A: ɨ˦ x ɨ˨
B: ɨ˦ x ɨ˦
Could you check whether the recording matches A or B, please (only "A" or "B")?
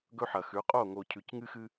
B